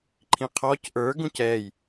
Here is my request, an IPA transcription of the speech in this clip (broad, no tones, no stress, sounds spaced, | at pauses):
ǃʰ ĩ qʰ ɔ c ʔ ə˞ ɡ ũ c ɛː j